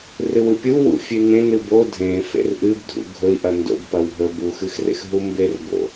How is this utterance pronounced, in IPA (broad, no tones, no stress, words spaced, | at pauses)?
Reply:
rɨwɨpʲu wṵfʲʉnẽ nɨbo dʱẽ fḛrʔɨb dʱṵɡʱɵi̯ʔɐ ndo̰bpɐw ɦɵbuxɨxrḛx ɦumberbo̰